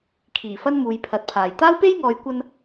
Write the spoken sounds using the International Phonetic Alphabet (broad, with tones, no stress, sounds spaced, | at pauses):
kʰ iː˨˩ f ɐ˥ n m uː˨˧ j pʰ ɐ˨˥ t̚ pʰ aː˨ j t̪ aː˥ w p e˥ j ŋ ɔː˨˧ j kʷ ɐ˥ n